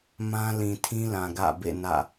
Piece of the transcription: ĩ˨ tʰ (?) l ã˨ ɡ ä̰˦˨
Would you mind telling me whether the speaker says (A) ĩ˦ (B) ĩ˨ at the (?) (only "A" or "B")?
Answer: A